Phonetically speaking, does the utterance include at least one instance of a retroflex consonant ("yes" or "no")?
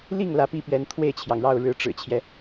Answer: yes